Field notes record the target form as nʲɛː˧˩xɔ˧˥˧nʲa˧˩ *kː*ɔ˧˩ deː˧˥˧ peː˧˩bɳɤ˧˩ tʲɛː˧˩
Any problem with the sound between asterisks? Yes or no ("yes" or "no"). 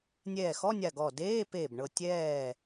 yes